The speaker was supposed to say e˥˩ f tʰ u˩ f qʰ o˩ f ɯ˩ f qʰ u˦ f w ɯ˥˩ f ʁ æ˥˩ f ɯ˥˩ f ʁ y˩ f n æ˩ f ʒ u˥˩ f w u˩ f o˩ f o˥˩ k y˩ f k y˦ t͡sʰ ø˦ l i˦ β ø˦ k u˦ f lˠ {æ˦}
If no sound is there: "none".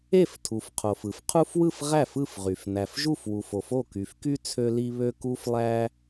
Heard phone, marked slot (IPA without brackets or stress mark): æ˦